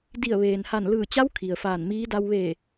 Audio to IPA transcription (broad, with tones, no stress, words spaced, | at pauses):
di˧˩ə̯ʋeː˩nha˧˩n lɯː˧˩t͡ɕa˧˥w kʰi˩ə̯faː˧˩nmiː˧˥ da˧wʋe˧˩